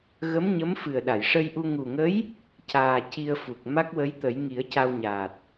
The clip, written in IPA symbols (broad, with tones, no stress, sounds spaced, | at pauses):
ɣ ə˧˥ m ɲ ə˧˥ m f ɨ˨˩ ə̯ ɗ a˨˩˨ j ʂ ə˧ j ʔ u˧ ŋ u˨˩ ŋ ə˧˥ j | c aː˨˩ c i˧ ə̯ f u˨˩ k̚ m a˦˥ k̚ w ə˧˥ j t̪ ə˨˩˦ j ŋ i˨˩˦ ə̯ c a˧ w ɲ aː˨˩ t̚